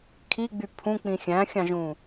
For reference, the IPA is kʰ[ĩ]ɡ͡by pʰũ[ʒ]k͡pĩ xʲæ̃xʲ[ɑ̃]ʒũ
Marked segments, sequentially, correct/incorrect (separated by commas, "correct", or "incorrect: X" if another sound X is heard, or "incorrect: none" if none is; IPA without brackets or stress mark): incorrect: i, incorrect: none, correct